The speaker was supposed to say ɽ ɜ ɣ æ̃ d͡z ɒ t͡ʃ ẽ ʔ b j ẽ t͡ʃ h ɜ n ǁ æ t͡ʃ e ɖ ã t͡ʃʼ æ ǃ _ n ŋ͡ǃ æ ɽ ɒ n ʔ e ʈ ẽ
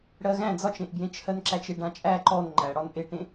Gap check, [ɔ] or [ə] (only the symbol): ɔ